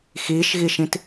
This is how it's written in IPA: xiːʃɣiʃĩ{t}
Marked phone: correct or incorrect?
correct